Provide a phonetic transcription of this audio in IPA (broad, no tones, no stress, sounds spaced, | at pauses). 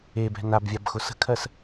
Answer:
e b ɛ̤ n a b vʲ a b x ʊ s ə̤ kʰ ɜ s